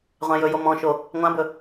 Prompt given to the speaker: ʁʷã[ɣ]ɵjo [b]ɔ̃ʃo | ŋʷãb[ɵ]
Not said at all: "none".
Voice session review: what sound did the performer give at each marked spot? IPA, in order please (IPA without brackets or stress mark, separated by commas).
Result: j, m, ɵ